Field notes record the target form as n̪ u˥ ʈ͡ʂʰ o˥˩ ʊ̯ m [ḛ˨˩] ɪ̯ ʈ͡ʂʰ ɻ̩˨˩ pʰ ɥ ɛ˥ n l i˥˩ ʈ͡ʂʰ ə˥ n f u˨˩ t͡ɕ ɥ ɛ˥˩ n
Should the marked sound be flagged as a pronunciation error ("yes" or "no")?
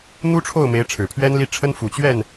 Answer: yes